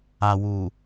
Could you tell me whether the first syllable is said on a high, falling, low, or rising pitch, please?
low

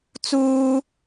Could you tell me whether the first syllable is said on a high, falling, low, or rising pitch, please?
high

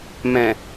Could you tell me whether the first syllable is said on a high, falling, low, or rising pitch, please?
low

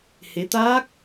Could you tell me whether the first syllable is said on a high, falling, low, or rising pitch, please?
rising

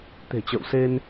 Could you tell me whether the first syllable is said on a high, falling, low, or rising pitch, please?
low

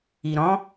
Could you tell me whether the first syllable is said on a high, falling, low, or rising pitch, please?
low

